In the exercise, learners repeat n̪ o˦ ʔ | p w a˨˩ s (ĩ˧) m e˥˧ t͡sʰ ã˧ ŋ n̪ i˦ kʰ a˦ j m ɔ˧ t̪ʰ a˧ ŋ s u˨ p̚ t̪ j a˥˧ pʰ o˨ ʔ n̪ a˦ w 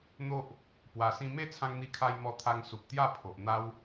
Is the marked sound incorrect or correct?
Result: correct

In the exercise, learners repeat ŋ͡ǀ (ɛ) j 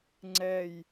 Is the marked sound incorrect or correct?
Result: correct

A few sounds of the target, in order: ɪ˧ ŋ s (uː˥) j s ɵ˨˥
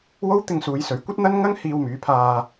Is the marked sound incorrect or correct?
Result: incorrect: uː˨˧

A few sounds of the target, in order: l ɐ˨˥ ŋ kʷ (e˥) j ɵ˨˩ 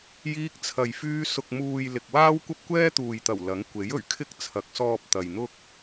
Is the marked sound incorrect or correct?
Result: incorrect: e˨˥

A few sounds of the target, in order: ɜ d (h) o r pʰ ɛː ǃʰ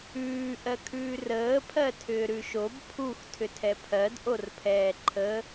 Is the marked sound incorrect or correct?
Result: incorrect: ʔ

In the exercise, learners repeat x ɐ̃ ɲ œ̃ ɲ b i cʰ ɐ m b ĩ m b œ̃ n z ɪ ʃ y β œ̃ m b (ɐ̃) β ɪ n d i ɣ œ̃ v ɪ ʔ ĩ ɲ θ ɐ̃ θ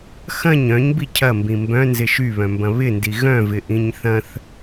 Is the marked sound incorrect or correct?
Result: correct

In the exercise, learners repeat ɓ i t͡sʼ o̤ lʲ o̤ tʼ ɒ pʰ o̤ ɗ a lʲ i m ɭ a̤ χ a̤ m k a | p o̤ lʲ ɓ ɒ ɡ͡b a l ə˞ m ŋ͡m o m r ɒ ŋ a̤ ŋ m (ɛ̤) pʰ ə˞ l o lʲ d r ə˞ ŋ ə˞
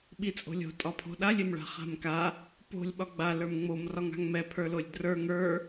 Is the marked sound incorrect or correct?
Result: incorrect: ɛ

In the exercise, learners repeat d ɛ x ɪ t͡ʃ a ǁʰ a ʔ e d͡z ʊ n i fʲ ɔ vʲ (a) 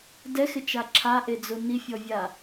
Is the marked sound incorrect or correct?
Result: correct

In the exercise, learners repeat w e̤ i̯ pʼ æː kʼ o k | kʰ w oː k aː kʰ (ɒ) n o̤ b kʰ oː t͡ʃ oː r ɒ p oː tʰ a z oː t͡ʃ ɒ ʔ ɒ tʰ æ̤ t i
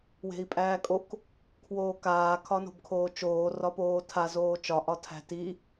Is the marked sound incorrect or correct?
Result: correct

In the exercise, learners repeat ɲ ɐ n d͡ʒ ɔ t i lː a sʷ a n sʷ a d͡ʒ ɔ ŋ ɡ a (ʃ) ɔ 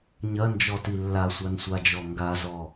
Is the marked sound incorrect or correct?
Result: incorrect: z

